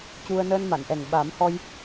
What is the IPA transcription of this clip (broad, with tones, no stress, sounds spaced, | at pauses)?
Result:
c u˧ ə̯ n əː˧ n m a˨˩˨ n ʔ ɛ˨˩ ŋ ɓ a˨˩˦ m h ɔ˧ j